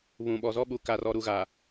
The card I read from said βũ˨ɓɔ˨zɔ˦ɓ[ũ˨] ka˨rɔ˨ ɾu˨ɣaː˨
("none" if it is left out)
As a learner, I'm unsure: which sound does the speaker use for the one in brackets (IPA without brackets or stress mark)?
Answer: u˨